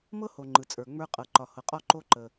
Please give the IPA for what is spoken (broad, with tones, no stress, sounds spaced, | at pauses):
m ɤ˥ h o˩ ŋ͡ǃ ɯ˩ t͡sʼ ə˞˩ ŋ͡m ə˞˧ qʼ ɤ˩ ǃ ɒ˩ h ɤ˩ qʼ ɒ˧ ǃ o˧ ǃ ə˩